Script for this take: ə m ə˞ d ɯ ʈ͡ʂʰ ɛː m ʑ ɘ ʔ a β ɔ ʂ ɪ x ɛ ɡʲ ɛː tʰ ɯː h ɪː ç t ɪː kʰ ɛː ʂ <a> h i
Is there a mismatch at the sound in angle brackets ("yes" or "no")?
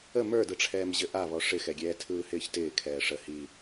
yes